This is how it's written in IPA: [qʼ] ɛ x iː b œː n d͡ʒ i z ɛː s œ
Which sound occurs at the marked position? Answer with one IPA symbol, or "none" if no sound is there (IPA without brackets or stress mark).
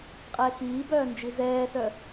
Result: qʼ